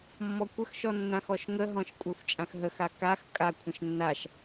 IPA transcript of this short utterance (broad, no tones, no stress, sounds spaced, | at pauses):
mː ɔ kʷ ə x ʃ ɔ nː ã x ɔ ʃ ŋ ə ɦ ɔ̃ ʃ kʷʼ a xʷ t͡ʃʼ ã x ɦ ə x a k a x kʼ a kʷʰ ə̃ ʃ nː a ʃ